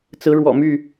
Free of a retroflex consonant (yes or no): no